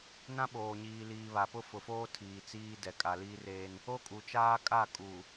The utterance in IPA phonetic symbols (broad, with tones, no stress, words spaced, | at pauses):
nã˦ɓoː˨ɲiː˨liː˨ βa˨pʊ˦fʊ˨foː˦ tʰiː˨ t͡siː˦dɛ˨ kʼa˨liː˦reː˦n | o˦kʼu˨t͡ʃaː˦kʼa˦˨ kʼuː˨